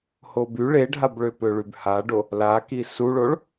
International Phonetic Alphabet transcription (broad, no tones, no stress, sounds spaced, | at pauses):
h o b y ɭ e ɖʱ a b ɭ ø p ø ɭ y b h a ɖ o | l a k i s u ɭ o ɭ